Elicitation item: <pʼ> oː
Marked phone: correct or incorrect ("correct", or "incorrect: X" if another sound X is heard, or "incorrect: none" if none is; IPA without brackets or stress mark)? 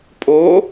correct